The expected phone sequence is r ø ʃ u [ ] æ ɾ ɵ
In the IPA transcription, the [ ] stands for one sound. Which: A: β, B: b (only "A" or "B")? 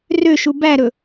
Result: B